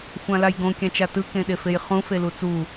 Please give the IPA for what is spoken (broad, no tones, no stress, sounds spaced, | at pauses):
xʷ ã l a j ɡ õ kʲ ã t͡ʃ a t ɯ k ẽ ɗ e f e j χ ũ f e l u t͡s u